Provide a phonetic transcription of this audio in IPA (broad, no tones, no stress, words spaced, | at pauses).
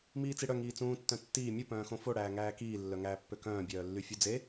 miːt͡siɽœ ŋiːt͡sũː tːœ̃tːiː mʲu pœ̃ːxõfo ɽæːŋæːkiː lːœŋæːpːøkœ̃ː bʲœːlːyfʲud͡ze